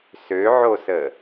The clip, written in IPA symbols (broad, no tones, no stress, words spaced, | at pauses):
søʕosə